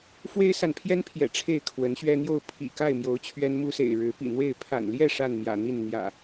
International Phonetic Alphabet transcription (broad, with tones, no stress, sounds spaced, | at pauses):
f w e˦ ɪ̯ s a˨ n pʰ j ɛ˦ n pʰ j ɛ̰˨˩ ʈ͡ʂʰ e˥˨ ɪ̯ kʰ w ə˨˦ n ɕ ɥ ɛ˦ n̪ j o˥˨ ʊ̯ pʰ ḭ˨˩ k a˥˨ ɪ̯ m j o˨˦ ʊ̯ t͡ɕʰ ɥ ɛ˦ n m u˦ s ḛ˨˩ ɪ̯ ɻ ɻ̩˨˦ p ḭ˨˩ n̪ w e˥˨ ɪ̯ pʰ a̰˨˩ n l j ɛ˥˨ ʂ a˥˨ n m j ä̰˨˩ n̪ i˥˨ n n̪ j ä̰˨˩